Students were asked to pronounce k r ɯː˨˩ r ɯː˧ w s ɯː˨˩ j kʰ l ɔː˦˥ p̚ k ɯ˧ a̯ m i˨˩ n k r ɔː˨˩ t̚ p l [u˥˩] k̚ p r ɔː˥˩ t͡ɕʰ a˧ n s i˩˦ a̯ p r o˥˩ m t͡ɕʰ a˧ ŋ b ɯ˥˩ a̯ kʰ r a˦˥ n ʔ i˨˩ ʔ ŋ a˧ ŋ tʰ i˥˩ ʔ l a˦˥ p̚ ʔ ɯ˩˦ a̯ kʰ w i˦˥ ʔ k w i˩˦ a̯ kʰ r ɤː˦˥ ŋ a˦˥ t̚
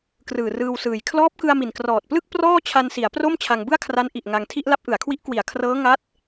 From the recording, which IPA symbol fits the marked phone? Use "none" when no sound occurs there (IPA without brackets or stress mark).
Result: ɯ˥˩